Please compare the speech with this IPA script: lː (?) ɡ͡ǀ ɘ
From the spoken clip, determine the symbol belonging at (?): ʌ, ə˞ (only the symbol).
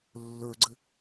ə˞